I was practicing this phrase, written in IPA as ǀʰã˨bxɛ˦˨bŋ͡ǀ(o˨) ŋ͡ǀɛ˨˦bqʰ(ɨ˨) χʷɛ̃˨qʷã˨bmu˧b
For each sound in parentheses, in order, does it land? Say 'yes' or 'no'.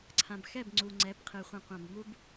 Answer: no, yes

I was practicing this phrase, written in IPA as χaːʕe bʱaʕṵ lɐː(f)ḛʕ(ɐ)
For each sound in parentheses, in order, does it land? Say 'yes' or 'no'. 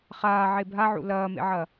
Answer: no, yes

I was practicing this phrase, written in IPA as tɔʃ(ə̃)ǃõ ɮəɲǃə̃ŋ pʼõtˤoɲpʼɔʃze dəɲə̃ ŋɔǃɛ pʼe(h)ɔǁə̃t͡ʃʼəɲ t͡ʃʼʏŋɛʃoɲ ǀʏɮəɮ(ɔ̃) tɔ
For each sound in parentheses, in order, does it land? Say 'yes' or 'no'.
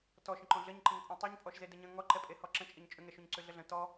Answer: yes, yes, no

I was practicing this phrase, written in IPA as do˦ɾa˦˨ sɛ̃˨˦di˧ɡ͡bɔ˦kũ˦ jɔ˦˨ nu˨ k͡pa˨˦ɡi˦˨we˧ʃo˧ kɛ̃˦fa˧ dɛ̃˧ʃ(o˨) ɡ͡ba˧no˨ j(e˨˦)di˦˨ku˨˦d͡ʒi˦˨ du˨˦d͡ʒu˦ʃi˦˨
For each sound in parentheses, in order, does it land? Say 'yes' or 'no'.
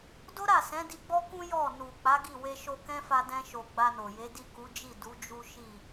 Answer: yes, yes

